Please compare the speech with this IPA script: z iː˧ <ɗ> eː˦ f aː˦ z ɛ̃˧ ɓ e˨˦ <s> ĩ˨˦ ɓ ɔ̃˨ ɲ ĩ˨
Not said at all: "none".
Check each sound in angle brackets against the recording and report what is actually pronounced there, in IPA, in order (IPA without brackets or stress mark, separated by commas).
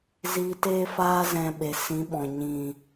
t, s